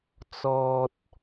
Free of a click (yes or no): yes